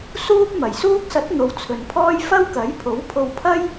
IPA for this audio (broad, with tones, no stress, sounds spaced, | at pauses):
s uː˥ p̚ m ɐ˨˩ j s uː˥ k̚ s ɐ˨˥ t̚ n̪ o˨˧ w t͡sʰ ɵ˨ n pʰ ɔː˥ j f ɐ˥ w k ɐ˨˥ j pʰ o˨˥ w pʰ o˧ w pʰ ɐ˥ j